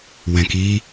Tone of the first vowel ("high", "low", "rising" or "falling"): low